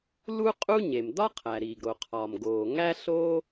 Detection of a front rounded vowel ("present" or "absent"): absent